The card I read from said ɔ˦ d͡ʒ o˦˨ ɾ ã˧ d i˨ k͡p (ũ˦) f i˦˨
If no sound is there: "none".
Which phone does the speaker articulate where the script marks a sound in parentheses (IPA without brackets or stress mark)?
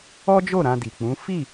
ũ˨˦